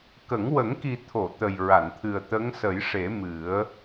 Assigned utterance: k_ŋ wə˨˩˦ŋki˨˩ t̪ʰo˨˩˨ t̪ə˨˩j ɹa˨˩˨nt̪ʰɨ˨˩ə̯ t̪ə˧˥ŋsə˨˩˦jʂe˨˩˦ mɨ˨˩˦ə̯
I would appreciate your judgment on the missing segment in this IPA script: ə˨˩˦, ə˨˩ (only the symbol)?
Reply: ə˨˩˦